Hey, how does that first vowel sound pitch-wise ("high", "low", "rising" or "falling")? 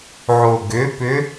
low